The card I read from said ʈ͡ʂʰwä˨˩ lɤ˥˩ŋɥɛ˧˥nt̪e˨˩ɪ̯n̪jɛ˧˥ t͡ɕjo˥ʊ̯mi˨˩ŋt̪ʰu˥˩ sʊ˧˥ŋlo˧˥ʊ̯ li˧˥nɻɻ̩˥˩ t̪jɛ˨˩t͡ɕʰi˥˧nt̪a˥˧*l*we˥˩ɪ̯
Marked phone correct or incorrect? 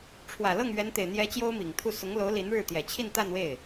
incorrect